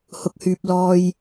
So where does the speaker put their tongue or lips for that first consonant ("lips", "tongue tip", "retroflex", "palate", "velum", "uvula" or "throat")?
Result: throat